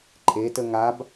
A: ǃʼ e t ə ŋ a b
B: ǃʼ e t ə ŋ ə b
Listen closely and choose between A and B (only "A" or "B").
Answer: A